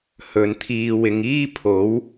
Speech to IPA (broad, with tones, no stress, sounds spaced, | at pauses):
h ɵ˨˧ n t̪ʰ iː˧ w ɪ˨˧ ŋ iː˥ pʰ o˨˥ w